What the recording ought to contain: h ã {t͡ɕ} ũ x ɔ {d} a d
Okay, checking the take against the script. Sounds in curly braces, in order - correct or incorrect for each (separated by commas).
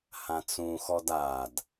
incorrect, correct